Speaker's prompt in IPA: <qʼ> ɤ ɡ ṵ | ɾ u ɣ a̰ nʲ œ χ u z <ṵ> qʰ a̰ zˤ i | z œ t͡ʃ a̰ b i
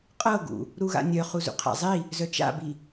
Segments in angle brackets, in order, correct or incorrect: correct, correct

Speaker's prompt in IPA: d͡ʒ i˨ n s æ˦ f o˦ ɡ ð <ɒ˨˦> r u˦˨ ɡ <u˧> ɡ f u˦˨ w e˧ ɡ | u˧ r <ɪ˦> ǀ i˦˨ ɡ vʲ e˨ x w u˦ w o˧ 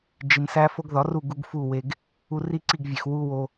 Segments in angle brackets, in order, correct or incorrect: correct, correct, incorrect

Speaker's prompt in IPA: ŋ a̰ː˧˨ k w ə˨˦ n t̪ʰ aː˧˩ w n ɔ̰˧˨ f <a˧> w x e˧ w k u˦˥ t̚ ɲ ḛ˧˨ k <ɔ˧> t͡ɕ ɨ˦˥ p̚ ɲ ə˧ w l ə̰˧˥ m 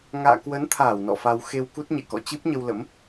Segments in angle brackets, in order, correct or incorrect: correct, incorrect

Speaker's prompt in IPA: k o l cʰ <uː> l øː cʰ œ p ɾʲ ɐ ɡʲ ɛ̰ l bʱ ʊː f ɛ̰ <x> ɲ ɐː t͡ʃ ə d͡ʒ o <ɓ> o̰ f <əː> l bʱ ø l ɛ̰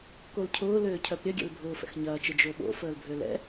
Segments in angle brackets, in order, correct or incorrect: incorrect, correct, correct, correct

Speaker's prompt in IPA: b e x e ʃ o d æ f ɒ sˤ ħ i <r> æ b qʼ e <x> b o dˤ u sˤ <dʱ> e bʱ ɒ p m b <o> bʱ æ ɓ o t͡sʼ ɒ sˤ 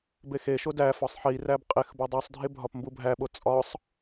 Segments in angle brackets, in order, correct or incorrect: correct, correct, correct, incorrect

